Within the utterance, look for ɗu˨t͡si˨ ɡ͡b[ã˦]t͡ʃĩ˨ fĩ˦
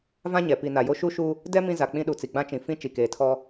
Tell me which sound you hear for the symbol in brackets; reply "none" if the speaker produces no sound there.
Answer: ã˦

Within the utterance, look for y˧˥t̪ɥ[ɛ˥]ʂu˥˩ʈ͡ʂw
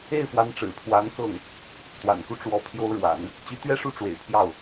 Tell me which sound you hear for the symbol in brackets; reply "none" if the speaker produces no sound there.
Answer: ɛ˥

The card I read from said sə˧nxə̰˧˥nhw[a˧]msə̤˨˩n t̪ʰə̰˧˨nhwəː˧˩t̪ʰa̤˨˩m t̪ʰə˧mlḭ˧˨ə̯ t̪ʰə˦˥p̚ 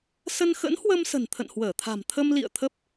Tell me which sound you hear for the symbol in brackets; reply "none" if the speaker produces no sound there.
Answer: ə˧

